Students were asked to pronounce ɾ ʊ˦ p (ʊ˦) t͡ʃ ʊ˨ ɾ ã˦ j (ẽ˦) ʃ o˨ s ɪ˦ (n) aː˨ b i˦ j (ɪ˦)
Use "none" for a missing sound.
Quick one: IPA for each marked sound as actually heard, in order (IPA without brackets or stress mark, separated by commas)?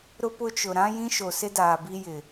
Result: ʊ˦, ĩ˦, d, ɪ˨